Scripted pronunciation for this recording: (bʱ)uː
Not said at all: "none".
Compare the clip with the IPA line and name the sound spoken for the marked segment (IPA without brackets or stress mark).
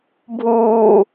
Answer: bʱ